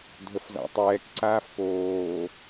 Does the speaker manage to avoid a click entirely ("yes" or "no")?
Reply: no